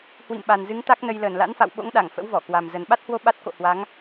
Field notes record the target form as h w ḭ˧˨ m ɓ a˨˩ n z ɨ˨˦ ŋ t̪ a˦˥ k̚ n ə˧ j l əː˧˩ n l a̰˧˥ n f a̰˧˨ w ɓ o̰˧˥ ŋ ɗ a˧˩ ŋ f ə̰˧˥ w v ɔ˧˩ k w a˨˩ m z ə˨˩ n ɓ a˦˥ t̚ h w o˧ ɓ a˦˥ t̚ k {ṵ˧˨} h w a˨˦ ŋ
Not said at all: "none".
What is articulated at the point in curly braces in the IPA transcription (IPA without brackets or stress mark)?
o̰˧˨